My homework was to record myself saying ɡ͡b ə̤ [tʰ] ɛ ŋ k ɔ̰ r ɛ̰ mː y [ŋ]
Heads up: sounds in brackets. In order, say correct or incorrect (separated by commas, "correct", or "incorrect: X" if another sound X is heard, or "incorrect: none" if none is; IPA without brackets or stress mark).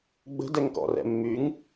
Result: incorrect: d, correct